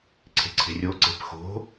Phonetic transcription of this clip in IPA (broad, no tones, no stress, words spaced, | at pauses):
ǀʰe̤ǀʰe̤rʲo ǀe̤pxo̤